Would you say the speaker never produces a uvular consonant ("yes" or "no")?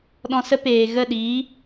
yes